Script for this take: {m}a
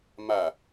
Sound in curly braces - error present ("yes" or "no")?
no